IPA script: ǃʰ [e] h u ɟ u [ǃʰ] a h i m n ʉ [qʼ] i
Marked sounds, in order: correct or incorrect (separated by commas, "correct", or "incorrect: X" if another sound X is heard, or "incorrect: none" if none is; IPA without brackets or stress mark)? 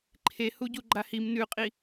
correct, incorrect: ɡ͡ǃ, correct